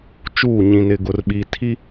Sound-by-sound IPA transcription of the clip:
t͡ʃuː˦˨ɲĩ˨nɪ˨ ɡʊ˨rɓi˨ tʰi˦

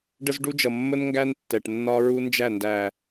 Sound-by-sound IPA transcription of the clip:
ɖə˦zɖu˦d͡ʒʌ˨ mːə˦nŋɡæ˦n tːɛ˨ʈnːɒ˦ ɹu˦nd͡ʒæ˦˨ndæ˨

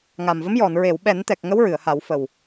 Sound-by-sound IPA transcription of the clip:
ŋa˨˩mvə˧˥mjɔ˨˩˨n ɹe˨˩˨wɓɛ˨˩˦nt̪ɛ˨˩k̚ ŋə˧˥wɹɨ˨˩˨ə̯ha˨˩˦wfə˨˩w

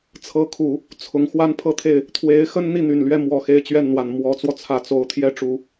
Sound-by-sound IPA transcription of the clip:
t͡sʰɤ˧˥kʰu˨˩˦ | t͡sʰʊ˧˥ŋ xwa˥npʰɤ˥˧t̪ʰe˥˩ɪ̯ | t̪ʰwe˧˥ɪ̯xə˥n n̪i˥˩n̪y˨˩nlɥɛ˥˩ mwɔ˨˩ xe˥˧ɪ̯t͡ɕɥɛ˥˩nn̪wa˨˩n mwɔ˧˥t͡swɔ˧t͡sʰä˨˩ t͡so˧˥ʊ̯t̪ʰjɛ˥ ʈ͡ʂu˨˩˦

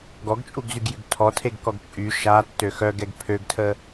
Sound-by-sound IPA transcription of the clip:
ɡɔɡt͡ʃʼuɡzyɡjyɡ tʰɔtʰeɡkɔɡ t͡ʃʼy ʃatːø xœɡɛɡ pʰøɡtʰə

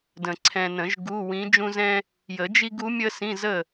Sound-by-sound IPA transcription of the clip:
də̃˨ǀʰɛ̃˨nə̃˨˩˦ʒ ɡu˧˥˧wĩ˧˥ d͡ʒũ˥zɛ̃˥ | jə˨˩˦d͡ʒi˥ɡu˧˥mʲə˥ sĩ˧˥˧zə˥˩

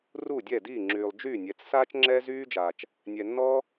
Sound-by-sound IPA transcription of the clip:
ru˥˩dʲɛ˥˩diː˥˩ ŋ͡ǁyː˨lˠd͡ʒyː˥˩nʲɛ˨t͡s saː˦t͡ʃŋ͡ǁɛː˦zyː˦d͡ʒaː˨t͡ʃ | nʲɛ˨nːɔ˦

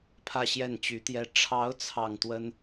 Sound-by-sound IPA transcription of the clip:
pʰä˥˧ɕjɛ˥˩nt͡ɕy˧˥t̪jɛ˥ ʈ͡ʂʰɑ˧˥ʊ̯ t͡sʰɑ˥˩ŋt̪wə˥n

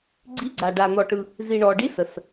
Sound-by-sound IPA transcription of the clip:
ɡ͡ǀi˧˥ɡ͡ǀa˨ɖa˨ n̪ɔ˨ʈɯ˨ | zi˨ɳɔ˨ɖi˧˥ sə˨s

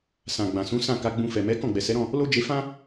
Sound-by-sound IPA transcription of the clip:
sã˨ɡ͡bã˨sũ˨˦ sã˦˨ ka˧ɡ͡bũ˧fɛ˨ mɛ˨˦ kɔ̃˦˨ɡ͡bɛ˨sɛ˨˦ɾɔ̃˦˨ | lo˦d͡ʒe˧fã˦

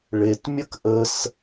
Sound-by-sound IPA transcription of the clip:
ɭetmʲək ʔəs

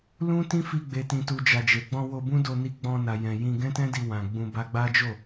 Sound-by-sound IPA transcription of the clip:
lũ˦tĩ˦fi˧ ɡ͡be˨tĩ˨tu˨ d͡ʒa˨d͡ʒe˨ɡ͡bɔ̃˧ wo˧bũ˦do˧ ni˧ɡ͡bɔ̃˧na˨ jɛ̃˨jĩ˧ ɡɛ̃˦tɛ̃˦di˧ wã˨ ɡ͡bũ˧ba˦ ɡ͡ba˦d͡ʒo˦˨

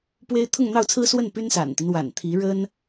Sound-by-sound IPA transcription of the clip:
pwe˥ɪ̯ t̪ʰʊ˥˧ŋn̪ɑ˥˩ʊ̯t͡sʰɹ̩˥swə˥˩n py˥nsa̰˨˩nt̪i˦n wa̰˨˩nt̪ʰi˧˥ ɻə˥n

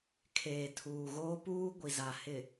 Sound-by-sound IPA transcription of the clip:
kʰeː˨tʰuː˨ ɣoː˦puː˦ ɡʷi˨za˨hɪ˨

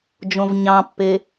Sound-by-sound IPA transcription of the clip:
d͡ʒõvɲɑ̃pːe

